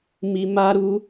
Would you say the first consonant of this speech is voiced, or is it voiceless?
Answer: voiced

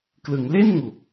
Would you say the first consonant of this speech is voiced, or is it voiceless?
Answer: voiceless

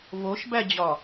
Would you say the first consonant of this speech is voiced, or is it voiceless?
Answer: voiced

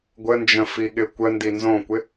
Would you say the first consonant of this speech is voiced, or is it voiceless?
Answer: voiced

